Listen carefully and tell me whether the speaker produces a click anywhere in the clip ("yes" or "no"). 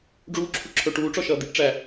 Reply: yes